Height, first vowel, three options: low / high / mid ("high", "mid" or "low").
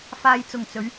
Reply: low